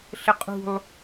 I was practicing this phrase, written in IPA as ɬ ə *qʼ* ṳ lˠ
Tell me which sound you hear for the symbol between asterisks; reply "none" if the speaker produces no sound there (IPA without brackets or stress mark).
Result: qʼ